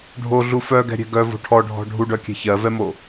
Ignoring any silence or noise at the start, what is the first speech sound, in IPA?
ɖʱ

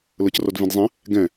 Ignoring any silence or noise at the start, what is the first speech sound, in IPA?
l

